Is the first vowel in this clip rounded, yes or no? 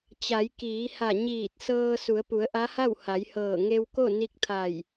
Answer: no